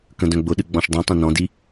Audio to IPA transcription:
k ə̃ d œ̃ ɡ͡b ʊ ɗ ɨ ɡ͡b ɔ̃ ʃ dˤ ĩ tˤ ĩ n ɔ̃ d i

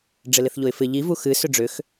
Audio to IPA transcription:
ɖ͡ʐ ɪ l ɪ θ ʎ o ɪ̯ f ɪ ʎ i v u x ɨ s ʏ ɖ͡ʐ ʏ x

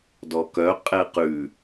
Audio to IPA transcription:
d ɔ k œ qʼ ɛ q ʉ

